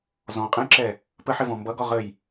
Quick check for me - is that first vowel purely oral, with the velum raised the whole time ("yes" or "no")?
no